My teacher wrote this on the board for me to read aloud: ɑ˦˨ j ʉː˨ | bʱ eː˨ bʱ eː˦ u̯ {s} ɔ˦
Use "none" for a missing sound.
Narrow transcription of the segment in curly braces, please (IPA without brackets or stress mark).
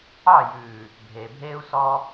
s